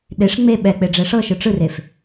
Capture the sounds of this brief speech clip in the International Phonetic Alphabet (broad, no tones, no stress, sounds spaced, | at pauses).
ɗ e ʂ ŋ͡m e ɓ ɛ k͡p e ɖ͡ʐ ɛ ʂ ɤ ʃ ɯ ʈ͡ʂ ɯ r e f